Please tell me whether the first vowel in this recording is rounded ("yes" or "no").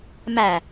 no